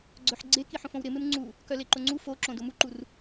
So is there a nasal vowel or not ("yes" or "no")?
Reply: yes